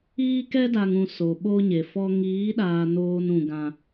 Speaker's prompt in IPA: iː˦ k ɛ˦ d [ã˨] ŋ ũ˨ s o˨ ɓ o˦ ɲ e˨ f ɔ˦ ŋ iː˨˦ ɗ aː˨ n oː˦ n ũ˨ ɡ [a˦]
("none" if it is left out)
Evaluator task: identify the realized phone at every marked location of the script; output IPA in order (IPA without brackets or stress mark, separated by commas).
a˨, ã˦